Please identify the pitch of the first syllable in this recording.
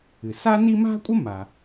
low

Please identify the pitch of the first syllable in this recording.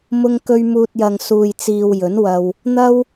high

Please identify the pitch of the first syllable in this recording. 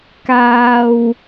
low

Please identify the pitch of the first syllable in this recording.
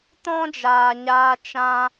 high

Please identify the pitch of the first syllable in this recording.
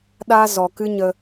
high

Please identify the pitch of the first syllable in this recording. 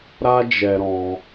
high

